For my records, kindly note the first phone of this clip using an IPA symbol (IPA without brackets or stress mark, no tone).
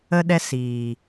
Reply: ə